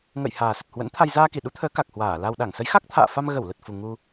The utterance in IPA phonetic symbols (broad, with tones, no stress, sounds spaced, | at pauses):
ŋ ə̰˧˨ j h aː˨˩ s ə˨˩ t̚ h w ə̰˧˥ n t̪ʰ a˧ j z aː˧ k i˧˩ ɗ u˨˦ t̪ʰ əː˨˦ k a˨˩ k̚ h w aː˧˩ l a˧ w ɗ a˧˩ ŋ s ə˨˦ j x a˦˥ k̚ t̪ʰ a̰ː˧˨ f a˧ m ɣ ə˧˩ w l ə˨˩ t̚ f u˨˩ ŋ u˧